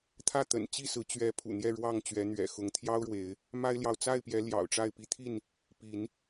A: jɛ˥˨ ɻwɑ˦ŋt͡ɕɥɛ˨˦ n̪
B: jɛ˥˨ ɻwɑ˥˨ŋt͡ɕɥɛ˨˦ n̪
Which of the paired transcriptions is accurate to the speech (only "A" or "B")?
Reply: B